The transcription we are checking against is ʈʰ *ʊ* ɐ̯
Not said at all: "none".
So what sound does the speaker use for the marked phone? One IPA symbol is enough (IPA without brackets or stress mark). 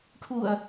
u